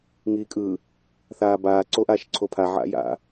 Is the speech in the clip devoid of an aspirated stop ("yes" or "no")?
no